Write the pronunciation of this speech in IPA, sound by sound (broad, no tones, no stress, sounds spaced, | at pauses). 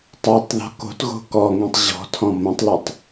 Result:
tˤ o tˤ ð ɔ̤ k o̤ t ɣ o̤ k ɔ ŋ ĩ tˤ ʑ ɔ̤ tʰ ɔ̃ m õ tˤ l ɔ tˤ